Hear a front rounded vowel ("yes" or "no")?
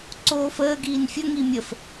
no